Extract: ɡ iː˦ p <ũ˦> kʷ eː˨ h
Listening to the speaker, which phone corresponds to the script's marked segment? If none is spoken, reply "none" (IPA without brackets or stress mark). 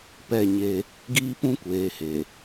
ũ˦